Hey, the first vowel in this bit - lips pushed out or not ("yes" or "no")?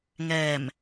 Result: no